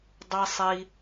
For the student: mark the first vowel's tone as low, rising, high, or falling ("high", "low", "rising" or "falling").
low